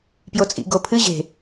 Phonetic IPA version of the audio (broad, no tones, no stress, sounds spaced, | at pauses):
p j o t͡sʼ ḭ ɡ o pʰ ɨ ʑ e̤